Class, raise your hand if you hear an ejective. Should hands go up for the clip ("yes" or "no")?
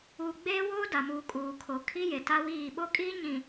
yes